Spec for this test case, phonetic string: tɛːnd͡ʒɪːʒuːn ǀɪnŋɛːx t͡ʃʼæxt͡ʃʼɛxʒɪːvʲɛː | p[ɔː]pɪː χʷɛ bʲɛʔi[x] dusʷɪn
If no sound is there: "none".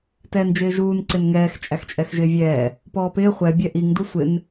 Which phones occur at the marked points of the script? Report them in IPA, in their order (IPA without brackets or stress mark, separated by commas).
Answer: ɔː, ŋ